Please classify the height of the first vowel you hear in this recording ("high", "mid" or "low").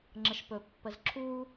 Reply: mid